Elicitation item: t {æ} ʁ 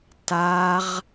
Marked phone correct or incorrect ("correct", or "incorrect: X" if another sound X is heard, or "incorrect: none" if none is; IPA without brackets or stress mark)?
incorrect: a